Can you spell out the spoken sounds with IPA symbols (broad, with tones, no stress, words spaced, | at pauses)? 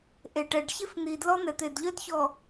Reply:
ʔe˨ʈɛ˨ɖ çe˦fn̪i˨dlɔ˦ n̪ɛ˨t̪e˨dʎœ˦d çɔ˨